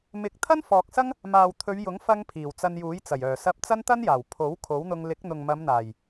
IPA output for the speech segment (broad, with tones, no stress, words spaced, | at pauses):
mɪ˨˥k̚t̪ʰɐ˥nfɔː˨k̚sɐ˥ŋ | maː˨wt̪ʰɵ˨˧ɥjʊ˨˥ŋfɐ˧ŋ pʰiː˨˩wt͡sɐ˧njuː˨˥jt͡sɐ˨˩j œː˨˩sɐ˧p̚ t͡sɐ˥nt̪ɐ˥njaː˨˩w pʰo˨˥w kʰo˨˥wn̪ʊ˧ŋ lɪ˨˥k̚n̪ʊ˨ŋmɐ˨˧mn̪aː˨˩j